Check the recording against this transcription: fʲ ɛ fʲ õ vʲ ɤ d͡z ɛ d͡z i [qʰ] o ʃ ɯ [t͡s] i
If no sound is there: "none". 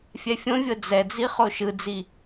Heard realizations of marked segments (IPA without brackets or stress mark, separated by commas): χ, d͡z